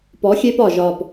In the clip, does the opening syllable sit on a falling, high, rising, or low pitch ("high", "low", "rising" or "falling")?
rising